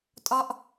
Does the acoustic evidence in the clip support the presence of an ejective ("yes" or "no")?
yes